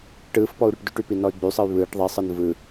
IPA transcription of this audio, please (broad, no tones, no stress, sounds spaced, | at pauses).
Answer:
ʈ ɯː f p ɔ u̯ ɾ y ʈ d y ʈ y p i n ɔ y̯ ɡ͡b y sˤ ɯ y̯ β ɯː ʈ ðˤ i sˤ ɯ n v ɯ